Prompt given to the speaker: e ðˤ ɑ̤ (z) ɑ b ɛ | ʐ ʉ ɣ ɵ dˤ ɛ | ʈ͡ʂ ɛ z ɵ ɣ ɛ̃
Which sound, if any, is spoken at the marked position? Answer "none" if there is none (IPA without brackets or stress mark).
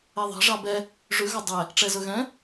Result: ʐ